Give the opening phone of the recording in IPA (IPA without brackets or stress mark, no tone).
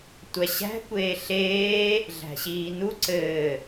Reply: tʷ